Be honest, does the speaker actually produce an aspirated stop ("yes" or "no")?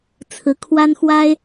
yes